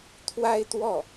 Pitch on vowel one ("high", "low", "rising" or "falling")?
high